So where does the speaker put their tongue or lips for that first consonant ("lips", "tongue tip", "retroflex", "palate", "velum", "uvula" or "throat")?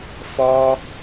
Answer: lips